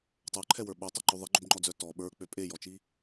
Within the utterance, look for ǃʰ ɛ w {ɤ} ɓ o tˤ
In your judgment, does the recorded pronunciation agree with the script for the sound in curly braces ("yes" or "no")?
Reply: no